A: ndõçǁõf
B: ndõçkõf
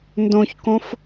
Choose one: B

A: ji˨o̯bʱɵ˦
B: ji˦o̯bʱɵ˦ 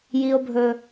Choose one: B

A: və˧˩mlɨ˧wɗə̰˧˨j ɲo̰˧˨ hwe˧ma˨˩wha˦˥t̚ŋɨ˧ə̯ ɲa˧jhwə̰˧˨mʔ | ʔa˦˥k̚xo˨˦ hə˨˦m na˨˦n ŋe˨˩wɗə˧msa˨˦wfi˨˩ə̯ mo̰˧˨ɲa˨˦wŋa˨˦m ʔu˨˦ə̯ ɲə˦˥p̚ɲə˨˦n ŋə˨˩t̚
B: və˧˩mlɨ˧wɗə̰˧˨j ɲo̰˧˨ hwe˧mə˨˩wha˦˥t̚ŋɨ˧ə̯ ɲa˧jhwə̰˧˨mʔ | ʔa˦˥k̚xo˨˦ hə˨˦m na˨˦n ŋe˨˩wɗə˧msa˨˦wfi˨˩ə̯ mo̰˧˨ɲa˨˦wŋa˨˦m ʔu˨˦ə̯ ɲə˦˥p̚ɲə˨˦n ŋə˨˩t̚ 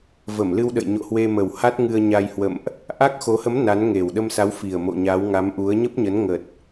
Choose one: B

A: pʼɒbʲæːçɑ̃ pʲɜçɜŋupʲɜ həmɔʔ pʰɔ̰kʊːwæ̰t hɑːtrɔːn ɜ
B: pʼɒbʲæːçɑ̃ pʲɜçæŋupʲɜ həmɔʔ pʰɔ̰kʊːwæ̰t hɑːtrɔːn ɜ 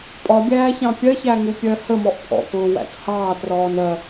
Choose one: B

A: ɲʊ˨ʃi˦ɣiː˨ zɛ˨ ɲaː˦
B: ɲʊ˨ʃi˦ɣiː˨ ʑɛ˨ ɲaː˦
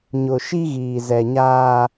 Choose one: A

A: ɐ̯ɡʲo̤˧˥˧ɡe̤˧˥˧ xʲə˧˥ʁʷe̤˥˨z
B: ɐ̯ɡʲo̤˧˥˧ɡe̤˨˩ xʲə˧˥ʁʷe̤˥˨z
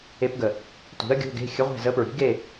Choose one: A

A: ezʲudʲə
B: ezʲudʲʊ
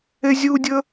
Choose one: A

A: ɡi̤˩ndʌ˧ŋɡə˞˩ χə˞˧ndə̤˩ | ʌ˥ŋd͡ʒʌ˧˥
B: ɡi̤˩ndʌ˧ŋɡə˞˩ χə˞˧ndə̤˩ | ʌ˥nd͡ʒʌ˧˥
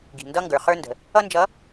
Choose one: B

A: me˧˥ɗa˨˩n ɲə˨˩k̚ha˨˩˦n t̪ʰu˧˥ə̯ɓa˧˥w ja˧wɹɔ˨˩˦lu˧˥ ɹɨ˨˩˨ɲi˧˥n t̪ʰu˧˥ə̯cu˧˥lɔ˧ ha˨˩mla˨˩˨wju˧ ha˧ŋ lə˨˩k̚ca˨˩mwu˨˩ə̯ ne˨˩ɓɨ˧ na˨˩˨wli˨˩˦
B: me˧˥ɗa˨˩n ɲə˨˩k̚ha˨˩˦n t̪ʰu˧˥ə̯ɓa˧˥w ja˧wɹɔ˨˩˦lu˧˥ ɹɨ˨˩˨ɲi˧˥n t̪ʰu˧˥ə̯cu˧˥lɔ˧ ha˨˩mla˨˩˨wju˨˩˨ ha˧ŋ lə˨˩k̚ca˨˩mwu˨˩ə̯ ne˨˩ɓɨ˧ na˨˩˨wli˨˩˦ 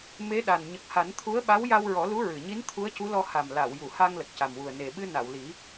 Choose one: B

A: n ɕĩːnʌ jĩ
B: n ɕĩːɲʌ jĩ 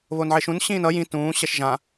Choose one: A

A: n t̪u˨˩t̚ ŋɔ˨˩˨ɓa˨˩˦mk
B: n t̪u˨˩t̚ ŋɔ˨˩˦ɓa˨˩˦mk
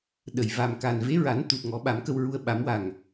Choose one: B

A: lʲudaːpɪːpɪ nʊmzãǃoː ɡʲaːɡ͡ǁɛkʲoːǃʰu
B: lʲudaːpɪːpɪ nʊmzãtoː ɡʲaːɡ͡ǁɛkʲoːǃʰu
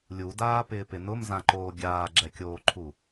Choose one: A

